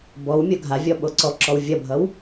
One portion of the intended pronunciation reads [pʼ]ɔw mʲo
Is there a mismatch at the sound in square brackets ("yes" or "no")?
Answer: yes